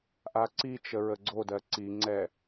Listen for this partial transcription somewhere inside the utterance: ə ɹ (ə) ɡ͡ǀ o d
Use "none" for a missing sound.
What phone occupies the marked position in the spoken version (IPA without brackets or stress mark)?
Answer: ə